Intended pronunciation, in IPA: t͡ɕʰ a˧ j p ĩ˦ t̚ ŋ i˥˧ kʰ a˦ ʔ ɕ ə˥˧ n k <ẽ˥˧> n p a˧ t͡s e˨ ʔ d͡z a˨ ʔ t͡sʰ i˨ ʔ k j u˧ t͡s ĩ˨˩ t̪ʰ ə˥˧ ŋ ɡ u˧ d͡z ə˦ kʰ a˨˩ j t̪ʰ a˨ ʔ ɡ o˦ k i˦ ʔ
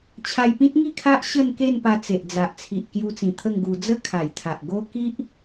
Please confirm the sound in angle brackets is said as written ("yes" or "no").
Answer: no